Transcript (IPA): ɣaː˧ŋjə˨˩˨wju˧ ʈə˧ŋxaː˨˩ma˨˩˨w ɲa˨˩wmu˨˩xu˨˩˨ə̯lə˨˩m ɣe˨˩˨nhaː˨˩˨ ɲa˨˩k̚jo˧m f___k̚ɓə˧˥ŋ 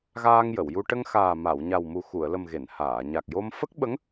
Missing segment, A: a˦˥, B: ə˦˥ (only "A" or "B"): B